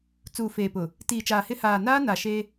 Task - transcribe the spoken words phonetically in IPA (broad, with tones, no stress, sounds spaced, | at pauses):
t͡s uː˨ f eː˨ p ʊ˨ | t iː˨ t͡ʃ aː˨ h ɪ˦ h aː˨ n aː˦ n a˨ ʃ e˦